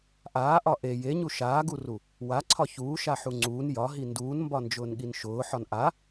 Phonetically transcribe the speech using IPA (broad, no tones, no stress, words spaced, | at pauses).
ʔaːʔɒ ʔe jeɲu ʃaːɡuru | waǀʰɒ çuːʃaħu ŋ͡ǀuːn jɒɦi nduːnmbɒnd͡ʒʊːnɠin ʃʊːħɒn ʔa